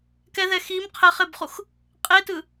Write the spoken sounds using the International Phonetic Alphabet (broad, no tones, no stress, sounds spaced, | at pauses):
k ɛ ð ɛ x i m qʰ ɛ χ e b χ u x | qʼ e t ɯ